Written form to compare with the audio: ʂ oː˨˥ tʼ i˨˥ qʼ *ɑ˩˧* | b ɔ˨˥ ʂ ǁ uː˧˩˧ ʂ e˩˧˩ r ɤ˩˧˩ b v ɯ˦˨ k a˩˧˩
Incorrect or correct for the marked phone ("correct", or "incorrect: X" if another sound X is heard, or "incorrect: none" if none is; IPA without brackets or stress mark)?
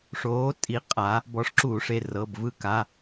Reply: incorrect: a˩˧